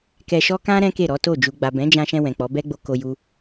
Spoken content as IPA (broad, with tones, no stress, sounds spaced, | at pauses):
k ɛ˧ ʃ ɔ˦ k ã˦ ɾ ɛ̃˦ k e˦˨ ɾ ɔ˨˦ t o˦˨ d͡ʒ u˨ ɡ͡b a˨ b ɛ̃˨˦ d͡ʒ ã˧ ʃ ɛ̃˧ w ɛ̃˨ k͡p ɔ˨˦ b ɛ˦ ɡ͡b o˧ k o˧ j u˧